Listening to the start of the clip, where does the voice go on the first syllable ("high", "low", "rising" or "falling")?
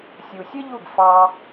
low